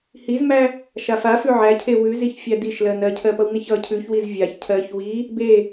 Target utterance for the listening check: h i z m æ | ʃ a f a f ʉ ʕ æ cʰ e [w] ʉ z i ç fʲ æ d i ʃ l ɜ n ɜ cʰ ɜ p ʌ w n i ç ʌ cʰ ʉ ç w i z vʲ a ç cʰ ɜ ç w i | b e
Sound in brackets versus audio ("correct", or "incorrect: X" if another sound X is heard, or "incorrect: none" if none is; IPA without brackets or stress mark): correct